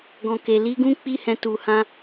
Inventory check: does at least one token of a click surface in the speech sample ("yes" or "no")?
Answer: no